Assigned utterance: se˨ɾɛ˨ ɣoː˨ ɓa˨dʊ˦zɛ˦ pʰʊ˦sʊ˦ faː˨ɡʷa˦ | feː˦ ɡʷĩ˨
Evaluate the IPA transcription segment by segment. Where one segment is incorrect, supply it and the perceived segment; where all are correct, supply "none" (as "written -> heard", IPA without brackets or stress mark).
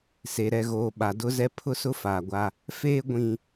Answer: none